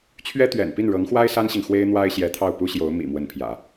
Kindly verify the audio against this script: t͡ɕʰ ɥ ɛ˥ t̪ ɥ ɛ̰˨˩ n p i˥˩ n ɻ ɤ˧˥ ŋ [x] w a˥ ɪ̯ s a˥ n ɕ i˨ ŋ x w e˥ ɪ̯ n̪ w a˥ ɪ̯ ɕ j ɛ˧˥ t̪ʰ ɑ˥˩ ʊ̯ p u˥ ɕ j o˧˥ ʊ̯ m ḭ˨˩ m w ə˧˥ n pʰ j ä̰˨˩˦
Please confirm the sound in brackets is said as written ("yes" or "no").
yes